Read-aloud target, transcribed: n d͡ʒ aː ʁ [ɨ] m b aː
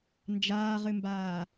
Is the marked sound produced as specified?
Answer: yes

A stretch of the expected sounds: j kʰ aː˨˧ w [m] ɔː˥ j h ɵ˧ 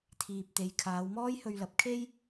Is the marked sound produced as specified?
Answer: yes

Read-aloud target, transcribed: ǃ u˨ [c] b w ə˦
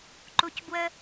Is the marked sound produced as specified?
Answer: yes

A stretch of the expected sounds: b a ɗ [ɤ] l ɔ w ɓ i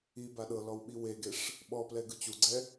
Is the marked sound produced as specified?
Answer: yes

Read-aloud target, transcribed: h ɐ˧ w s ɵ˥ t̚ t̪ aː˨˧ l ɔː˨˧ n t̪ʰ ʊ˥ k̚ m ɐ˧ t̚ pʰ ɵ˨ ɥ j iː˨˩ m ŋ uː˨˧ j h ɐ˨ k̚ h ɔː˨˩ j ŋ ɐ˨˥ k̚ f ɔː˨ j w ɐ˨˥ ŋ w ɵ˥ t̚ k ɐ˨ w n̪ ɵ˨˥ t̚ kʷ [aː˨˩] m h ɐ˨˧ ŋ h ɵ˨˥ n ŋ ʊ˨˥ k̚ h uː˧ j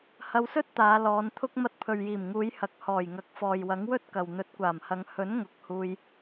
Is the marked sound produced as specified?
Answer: yes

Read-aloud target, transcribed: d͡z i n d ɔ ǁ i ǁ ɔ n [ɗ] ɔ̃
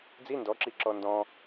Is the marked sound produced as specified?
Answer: no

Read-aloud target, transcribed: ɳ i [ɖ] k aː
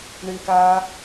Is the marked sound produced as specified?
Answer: no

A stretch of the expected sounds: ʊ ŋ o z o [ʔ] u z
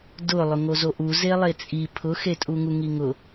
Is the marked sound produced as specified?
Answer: yes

